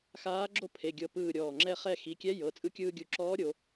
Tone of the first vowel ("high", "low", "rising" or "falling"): rising